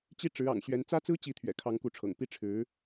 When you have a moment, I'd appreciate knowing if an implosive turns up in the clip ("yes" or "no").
no